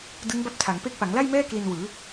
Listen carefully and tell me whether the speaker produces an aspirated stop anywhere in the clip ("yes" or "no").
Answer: yes